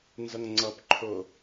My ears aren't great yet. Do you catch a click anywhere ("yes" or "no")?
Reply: yes